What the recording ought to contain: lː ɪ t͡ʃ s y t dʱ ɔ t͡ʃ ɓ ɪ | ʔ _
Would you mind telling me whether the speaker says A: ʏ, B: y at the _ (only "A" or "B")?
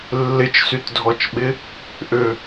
A